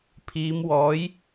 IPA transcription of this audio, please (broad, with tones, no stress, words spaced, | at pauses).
pʰiː˨˧mwɔː˨˥j